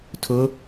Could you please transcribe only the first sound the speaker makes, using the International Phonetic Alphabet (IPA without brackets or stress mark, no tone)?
tʰ